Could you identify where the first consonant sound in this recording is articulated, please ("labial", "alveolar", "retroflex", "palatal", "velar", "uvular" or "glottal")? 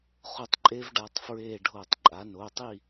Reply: uvular